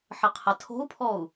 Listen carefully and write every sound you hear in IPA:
ħəqʰətʰo̤u̯pʰɔu̯

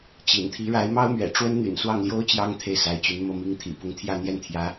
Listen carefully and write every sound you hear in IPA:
t͡ɕḭ˨˩n t̪ʰi˧˥ɻa˧˥ɪ̯mɑ˥ʊ̯mɥɛ̰˨˩ ʈ͡ʂwə˥nn̪y̰˨˩n swɑ˥˩ŋljo˥ʊ̯ t͡ɕjɑ˥ŋ t̪ʰe˥˩ɪ̯sa˧˥ɪ̯t͡ɕy˧˥n mɤ˥˩mi˥ŋt̪ʰḭ˨˩ pʊ˧˥ŋt̪ʰjä˥˧n̪jɛ˥˩nt̪ʰjä˧˥

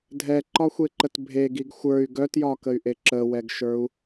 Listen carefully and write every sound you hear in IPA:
dʱɛǃɒxʷeǃət bʱeɡiɡ xʷə˞y̯ ɡœtjɒkəy̯ʔe ǁəwɛɡʃə˞u̯

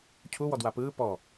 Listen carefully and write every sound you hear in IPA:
cʰu wɔdwapɯː pɔ

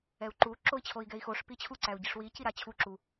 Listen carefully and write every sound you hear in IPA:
ɛu̯ǃu ǁoi̯t͡ɕʰoi̯ɡɛi̯xoʂ pit͡ɕʰu ǀæu̯ɟiʂwi ciɾat͡ɕʰu ǁu

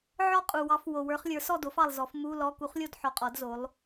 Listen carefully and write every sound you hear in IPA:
ʕɔ˥˧qʼu˨ wɑ˧˥fwo˨ wə˞˧˥χlʲə˞˩˥ sɔ˥˧do˩˥fɑ˨lˠzɔ˨˩˦f mu˧˥˧lɔ˧˥˧ ku˧˥χlʲo˥˧dħɔ˨qʼɔ˨˩˦d zo˩˥lˠ

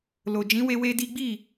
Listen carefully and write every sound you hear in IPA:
lo˨ d͡ʒĩ˨˦we˧ we˦di˦ ɡ͡bi˦˨

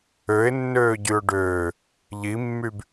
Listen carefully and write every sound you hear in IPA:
øɪ̯nːøː ɟyʊ̯ɖøː | ʎimːyb

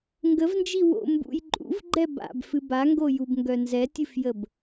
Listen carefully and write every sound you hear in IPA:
ŋɡəvnd͡ʒi wo̰ mbṵj ǃʼṵvɡ͡ǃɛ ba̰bfɨ baŋɡojubŋɡœ nzɛtʲɨfjəb

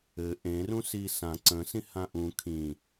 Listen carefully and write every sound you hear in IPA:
ɘ ʔẽ rũsisã ǀə̃ sĩhãʔũ kʰĩ

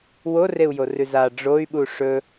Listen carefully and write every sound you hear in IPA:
woreu̯jorʉ za ɖ͡ʐoy̯ɓu ʂɵ

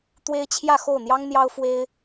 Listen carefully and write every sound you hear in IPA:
t̪we˥ɪ̯t͡ɕʰjä˥˧ xo˥˩ʊ̯n̪jɑ˥ŋn̪jɑ˥ʊ̯ fwe˥ɪ̯

